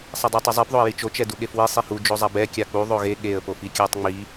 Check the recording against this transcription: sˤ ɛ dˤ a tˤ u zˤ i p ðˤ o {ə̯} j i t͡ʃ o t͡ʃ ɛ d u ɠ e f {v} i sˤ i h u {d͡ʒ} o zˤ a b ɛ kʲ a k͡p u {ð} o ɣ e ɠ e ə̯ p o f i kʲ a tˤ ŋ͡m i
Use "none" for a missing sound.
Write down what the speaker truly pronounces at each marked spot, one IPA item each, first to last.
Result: ə̯, w, d͡ʒ, ðˤ

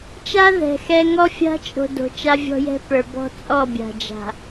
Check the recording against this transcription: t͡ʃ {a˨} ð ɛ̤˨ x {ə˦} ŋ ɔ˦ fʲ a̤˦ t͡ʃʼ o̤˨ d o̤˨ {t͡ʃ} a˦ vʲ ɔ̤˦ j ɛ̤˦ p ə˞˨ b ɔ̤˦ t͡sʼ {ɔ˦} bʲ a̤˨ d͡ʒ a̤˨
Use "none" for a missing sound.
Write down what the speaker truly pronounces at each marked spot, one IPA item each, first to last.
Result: a˦, ɛ˦, t͡ʃ, ɔ˦˨

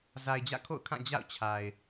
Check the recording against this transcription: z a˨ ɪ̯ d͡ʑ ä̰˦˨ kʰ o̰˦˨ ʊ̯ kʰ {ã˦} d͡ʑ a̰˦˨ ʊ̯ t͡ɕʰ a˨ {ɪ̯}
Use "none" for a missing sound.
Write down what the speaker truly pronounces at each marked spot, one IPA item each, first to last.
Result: ã˦˨, ɪ̯

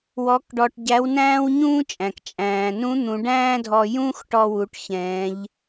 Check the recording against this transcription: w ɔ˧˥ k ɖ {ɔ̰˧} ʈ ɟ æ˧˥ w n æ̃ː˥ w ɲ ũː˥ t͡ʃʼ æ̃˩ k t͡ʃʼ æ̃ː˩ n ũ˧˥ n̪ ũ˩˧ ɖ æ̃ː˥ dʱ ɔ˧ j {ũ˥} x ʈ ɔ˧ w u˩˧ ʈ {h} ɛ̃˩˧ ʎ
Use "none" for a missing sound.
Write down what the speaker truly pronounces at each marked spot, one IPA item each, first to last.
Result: ɔ˧, ũ˥, ç

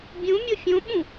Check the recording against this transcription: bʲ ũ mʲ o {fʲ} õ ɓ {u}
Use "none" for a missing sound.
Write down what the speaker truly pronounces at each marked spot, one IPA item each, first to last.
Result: fʲ, ũ

